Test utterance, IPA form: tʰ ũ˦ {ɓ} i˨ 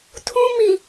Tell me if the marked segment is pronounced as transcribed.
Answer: no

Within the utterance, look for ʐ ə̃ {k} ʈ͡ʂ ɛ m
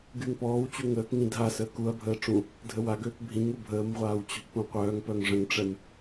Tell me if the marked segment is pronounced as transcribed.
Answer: no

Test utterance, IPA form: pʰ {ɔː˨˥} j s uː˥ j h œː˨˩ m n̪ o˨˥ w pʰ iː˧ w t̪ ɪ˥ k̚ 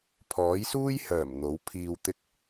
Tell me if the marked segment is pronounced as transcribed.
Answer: yes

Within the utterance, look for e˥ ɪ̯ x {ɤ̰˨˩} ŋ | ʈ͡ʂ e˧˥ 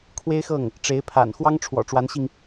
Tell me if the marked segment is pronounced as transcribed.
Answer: no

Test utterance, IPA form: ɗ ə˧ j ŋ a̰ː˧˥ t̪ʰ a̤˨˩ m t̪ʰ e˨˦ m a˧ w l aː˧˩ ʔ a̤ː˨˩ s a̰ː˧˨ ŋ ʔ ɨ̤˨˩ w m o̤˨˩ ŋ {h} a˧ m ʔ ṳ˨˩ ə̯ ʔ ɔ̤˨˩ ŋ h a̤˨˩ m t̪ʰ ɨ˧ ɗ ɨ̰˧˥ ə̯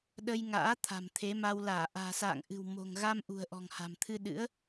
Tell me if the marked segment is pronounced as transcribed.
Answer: no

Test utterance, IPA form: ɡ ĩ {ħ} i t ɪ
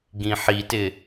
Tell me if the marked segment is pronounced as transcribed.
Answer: yes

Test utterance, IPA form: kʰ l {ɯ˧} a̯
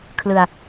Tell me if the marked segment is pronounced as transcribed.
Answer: yes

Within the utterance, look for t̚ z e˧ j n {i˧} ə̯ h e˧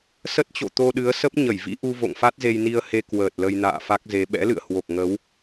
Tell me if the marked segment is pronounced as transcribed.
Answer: yes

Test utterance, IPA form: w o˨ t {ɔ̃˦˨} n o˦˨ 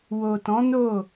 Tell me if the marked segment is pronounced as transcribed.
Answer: no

